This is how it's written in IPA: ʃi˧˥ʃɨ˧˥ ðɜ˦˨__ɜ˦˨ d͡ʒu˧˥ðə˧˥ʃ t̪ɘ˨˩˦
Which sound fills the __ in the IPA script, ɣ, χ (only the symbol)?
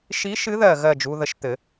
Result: ɣ